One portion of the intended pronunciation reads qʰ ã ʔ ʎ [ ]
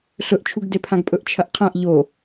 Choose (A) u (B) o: B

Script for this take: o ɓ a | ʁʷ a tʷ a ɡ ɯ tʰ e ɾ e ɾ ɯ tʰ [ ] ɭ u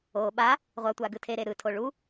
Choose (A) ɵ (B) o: B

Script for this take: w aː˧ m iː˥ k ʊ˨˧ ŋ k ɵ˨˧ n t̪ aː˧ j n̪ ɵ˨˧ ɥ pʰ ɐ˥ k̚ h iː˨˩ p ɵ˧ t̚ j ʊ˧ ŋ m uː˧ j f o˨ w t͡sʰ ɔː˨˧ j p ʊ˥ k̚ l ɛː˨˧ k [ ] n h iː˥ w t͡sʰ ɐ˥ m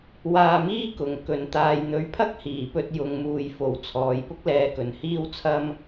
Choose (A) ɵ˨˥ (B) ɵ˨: B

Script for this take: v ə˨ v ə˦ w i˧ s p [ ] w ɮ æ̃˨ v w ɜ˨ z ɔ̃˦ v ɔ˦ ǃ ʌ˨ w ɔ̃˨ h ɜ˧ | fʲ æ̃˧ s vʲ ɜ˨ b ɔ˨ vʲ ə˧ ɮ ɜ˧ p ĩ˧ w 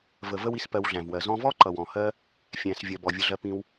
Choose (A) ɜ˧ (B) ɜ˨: A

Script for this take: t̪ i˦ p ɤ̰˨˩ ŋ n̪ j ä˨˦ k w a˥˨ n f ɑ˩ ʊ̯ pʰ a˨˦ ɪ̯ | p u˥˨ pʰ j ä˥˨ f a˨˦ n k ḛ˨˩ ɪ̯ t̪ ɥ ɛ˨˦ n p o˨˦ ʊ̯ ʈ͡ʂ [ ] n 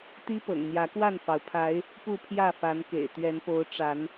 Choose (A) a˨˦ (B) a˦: A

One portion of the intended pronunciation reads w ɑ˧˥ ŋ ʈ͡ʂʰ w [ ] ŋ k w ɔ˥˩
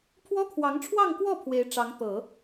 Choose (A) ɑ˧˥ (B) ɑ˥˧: B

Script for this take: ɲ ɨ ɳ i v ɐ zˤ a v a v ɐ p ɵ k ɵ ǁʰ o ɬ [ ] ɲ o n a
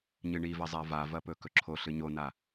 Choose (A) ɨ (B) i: A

